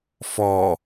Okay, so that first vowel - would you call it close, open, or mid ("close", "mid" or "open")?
mid